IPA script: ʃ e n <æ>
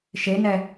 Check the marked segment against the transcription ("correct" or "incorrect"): incorrect